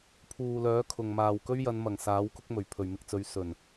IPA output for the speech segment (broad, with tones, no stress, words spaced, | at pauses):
pʰuː˨lœː˨˥kʰʊ˨ŋ maː˨˩wkɵ˥ɥjɐ˨˧nmɐ˨˩ŋ saː˨˥wkʊ˥k̚mɵ˨˩ɥ pʰɵ˨˩ɥmɪ˧k̚t͡sɵ˨˧ɥ sɵ˨˩n